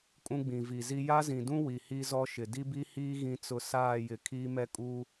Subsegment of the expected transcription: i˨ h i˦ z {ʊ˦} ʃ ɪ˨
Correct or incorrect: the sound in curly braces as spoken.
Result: incorrect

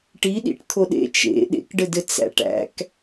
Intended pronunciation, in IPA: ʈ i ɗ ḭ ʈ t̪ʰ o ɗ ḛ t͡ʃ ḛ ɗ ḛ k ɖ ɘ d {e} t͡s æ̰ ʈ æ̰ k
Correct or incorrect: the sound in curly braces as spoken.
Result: incorrect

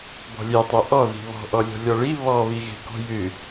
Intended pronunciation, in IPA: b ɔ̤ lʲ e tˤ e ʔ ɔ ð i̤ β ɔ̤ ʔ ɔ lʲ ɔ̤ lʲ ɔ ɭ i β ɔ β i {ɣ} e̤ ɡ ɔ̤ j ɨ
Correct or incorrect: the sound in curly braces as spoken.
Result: correct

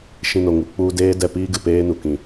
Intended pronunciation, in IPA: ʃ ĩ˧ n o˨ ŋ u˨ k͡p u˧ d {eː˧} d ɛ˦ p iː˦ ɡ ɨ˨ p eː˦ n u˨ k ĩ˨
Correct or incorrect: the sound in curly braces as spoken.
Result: incorrect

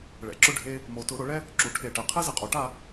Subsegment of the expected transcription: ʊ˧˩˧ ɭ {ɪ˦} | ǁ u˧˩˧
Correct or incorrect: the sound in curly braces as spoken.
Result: incorrect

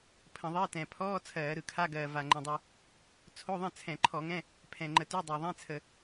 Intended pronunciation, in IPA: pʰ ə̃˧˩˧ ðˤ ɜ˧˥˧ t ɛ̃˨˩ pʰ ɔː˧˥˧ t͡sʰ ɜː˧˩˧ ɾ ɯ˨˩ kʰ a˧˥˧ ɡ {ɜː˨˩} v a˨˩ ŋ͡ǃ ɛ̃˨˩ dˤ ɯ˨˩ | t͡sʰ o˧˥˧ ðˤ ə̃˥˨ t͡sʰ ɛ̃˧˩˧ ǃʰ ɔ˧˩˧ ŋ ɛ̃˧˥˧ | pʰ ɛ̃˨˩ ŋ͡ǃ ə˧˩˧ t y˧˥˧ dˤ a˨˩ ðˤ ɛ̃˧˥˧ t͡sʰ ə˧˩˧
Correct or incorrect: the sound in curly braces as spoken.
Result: correct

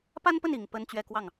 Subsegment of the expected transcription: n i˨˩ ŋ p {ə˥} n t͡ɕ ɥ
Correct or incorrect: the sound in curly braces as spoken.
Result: correct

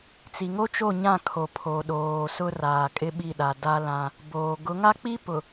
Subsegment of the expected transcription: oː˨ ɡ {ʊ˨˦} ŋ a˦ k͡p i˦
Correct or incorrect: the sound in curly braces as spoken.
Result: correct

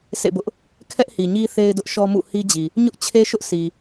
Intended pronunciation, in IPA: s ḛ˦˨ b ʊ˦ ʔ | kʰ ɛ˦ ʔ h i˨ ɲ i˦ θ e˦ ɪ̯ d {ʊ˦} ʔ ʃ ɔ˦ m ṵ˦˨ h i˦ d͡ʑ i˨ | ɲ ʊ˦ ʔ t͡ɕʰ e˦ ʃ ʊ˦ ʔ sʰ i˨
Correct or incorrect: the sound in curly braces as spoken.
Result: correct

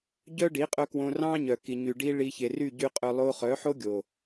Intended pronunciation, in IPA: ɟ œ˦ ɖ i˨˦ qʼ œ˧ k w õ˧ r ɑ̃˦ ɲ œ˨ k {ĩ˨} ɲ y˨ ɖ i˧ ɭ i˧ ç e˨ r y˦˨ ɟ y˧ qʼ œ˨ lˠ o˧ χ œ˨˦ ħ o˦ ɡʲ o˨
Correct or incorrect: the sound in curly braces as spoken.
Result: incorrect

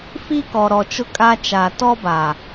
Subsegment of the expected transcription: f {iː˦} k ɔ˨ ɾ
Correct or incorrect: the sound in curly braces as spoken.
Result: incorrect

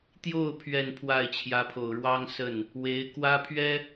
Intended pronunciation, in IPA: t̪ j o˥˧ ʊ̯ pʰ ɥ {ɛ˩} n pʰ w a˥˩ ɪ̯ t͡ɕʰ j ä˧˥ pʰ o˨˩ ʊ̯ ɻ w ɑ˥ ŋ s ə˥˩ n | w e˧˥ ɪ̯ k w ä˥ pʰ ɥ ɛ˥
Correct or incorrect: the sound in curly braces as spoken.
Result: incorrect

